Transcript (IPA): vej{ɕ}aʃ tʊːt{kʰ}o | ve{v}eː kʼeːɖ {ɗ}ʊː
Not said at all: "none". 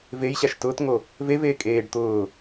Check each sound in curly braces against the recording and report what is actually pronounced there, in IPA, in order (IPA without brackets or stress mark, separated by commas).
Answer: ɕ, ŋ, v, t̪